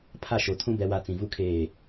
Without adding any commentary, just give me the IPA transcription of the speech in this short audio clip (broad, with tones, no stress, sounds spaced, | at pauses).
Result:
pʰ a˦˨ ʃ o˨ tʰ ũ˦ b ɛ˨ w a˨ t͡s ĩ˨ v u˦ kʰ eː˦˨